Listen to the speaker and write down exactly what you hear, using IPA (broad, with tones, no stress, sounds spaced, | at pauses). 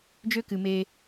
d͡ʒ ø˦ k ɨ˨ m e˦